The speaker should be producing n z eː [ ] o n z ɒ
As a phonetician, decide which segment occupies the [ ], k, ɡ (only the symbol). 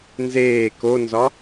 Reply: k